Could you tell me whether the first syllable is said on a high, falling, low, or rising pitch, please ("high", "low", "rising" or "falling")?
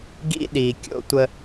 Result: high